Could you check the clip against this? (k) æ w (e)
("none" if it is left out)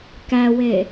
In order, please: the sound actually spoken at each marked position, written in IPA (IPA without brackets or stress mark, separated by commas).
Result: k, e